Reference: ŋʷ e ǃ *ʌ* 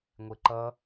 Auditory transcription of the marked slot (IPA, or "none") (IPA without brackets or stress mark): ʌ